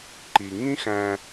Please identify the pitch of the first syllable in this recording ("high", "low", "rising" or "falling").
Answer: low